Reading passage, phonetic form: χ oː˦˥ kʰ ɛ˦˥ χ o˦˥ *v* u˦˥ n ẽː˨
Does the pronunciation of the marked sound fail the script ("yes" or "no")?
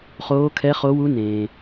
yes